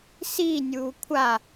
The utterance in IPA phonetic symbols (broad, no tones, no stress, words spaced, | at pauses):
siːnʲuː kʷʰa